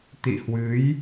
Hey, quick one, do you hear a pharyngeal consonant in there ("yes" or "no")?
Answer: no